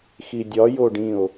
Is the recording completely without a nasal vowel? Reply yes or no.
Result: no